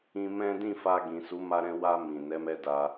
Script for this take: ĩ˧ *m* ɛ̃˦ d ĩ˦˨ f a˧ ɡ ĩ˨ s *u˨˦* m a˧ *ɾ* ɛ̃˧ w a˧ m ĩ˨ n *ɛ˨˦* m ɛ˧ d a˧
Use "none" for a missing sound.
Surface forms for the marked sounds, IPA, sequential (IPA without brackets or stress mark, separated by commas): m, u˨˦, ɾ, ɛ˨˦